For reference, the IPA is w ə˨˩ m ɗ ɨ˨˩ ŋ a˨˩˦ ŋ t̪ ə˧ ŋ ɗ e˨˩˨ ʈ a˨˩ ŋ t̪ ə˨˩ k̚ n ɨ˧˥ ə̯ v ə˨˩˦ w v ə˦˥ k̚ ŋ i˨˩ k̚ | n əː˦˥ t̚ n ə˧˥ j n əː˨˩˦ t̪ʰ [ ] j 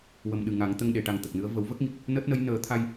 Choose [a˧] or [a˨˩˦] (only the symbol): a˧